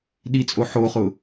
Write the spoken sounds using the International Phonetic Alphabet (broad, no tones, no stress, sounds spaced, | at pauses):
ɗ i t͡sʼ o ħ o χ ʊ